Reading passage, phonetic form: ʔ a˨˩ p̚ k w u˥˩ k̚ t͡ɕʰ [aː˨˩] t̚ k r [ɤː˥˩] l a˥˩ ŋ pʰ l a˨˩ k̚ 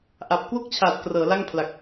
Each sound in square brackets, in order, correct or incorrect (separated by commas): correct, incorrect